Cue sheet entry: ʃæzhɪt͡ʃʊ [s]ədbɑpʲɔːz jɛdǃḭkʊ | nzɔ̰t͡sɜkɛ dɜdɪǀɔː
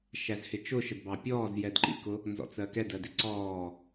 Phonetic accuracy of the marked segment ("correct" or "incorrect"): incorrect